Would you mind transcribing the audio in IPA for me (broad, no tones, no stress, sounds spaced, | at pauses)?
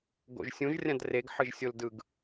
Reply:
ɡ o̰ ʒ sʲ ũ ʒ rʲ ã d r e ɡ ħ ɯ ʒ sʲ o l d ɯ ɡ